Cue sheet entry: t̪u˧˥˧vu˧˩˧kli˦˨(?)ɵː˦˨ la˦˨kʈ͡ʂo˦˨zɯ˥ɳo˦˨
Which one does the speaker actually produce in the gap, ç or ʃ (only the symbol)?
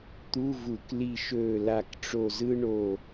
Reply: ʃ